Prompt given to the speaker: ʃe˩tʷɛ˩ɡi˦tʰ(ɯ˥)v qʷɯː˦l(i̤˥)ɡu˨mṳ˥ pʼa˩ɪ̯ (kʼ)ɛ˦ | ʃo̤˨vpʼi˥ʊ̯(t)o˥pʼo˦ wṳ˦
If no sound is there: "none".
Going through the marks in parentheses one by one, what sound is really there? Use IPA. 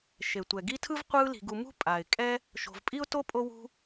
ɯ˥, i̤˨, kʼ, t

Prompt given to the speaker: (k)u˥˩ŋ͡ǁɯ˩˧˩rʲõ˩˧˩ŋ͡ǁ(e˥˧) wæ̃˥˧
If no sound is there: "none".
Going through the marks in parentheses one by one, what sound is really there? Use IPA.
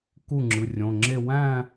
k, e˥˧

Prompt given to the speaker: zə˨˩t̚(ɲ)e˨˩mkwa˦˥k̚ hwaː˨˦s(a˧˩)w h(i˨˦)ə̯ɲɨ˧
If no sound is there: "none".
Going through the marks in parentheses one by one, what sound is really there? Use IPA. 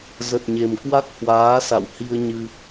ɲ, a̰˧˨, i˧

